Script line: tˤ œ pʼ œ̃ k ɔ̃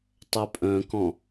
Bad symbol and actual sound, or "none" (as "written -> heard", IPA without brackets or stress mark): none